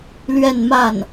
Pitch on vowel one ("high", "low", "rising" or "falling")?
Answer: falling